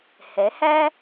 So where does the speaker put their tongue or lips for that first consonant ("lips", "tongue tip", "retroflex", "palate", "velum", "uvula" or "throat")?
throat